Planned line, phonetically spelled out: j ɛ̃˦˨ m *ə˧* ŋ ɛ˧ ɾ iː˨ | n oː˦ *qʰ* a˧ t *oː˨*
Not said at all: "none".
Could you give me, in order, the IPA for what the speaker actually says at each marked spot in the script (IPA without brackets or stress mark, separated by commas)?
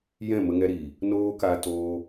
ə˧, k, oː˧